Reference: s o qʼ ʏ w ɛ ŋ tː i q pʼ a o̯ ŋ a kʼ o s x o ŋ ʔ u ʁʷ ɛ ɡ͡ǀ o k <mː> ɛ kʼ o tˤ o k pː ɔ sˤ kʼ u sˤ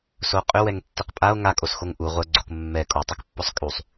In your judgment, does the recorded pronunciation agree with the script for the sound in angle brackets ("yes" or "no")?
yes